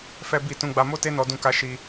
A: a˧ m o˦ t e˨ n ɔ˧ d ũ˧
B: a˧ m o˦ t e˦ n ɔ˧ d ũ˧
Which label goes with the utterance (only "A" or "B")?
B